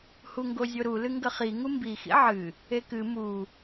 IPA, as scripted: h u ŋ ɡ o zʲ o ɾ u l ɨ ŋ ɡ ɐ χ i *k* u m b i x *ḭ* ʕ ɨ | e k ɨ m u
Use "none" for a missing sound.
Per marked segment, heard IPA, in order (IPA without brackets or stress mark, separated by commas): ŋ, ḭ